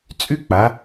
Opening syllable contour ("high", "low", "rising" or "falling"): high